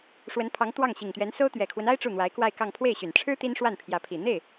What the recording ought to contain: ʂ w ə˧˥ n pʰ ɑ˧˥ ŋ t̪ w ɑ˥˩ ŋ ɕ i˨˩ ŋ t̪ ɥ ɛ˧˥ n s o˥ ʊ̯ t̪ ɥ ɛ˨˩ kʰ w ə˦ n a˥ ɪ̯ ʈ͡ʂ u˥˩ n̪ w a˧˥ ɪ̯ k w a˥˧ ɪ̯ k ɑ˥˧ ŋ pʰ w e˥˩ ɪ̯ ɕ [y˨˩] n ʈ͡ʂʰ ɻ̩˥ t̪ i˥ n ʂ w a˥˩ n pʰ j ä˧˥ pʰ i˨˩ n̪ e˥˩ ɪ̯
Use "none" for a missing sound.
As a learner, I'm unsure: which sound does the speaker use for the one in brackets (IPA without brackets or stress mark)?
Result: y˨˩